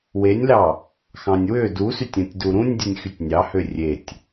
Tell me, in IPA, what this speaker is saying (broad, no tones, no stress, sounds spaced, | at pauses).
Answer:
w e nʲ l ɑ | x ɑ̃ nʲ w ø d u s y tʲ ũ tʲ d u ɾ ũ nʲ dʲ u nʲ x y tʲ nʲ ɑ h ø rʲ e tʲ